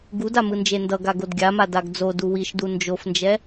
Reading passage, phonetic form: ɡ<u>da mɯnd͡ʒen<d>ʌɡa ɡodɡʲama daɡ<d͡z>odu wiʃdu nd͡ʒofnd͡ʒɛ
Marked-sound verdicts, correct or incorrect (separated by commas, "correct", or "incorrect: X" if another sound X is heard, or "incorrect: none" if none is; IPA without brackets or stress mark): correct, correct, correct